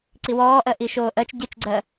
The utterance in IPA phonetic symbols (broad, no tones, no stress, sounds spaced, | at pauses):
ǀ i w ɔː ʔ ɜ ʔ i ʃ oː ʔ ɜ t͡ʃ ɟ i t͡ʃ ɡ͡ǀ ɜ